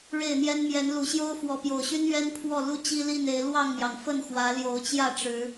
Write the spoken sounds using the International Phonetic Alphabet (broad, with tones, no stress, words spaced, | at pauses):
ɻe˥˨ɪ̯n̪jɛ˦n mjɛ˨˦n lu˨˩ɕjo˦ʊ̯ fwɔ˨˦pjo˨˩ʊ̯ɕy˦n ɥɛ˦n pʰwɔ˥˨lu˦ t͡ɕi˦li˥˨ne˨˦ɪ̯ lwɑ˥˨ŋmjɑ˩ŋ fə˥˨nxwä˨˦ ljo˨˦ʊ̯t͡ɕjä˥˨ʈ͡ʂɻ̩˨˦